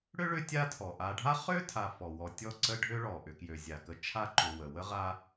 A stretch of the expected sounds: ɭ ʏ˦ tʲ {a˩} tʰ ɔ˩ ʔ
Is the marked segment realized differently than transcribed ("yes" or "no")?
yes